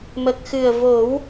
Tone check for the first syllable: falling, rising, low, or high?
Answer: low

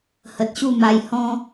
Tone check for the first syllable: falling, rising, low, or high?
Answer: low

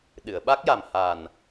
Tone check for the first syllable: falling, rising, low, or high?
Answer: low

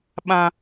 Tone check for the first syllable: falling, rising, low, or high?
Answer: high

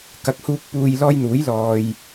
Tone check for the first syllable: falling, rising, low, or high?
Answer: low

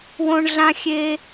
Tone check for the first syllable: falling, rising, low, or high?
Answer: high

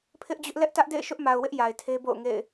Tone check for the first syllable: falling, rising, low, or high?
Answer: high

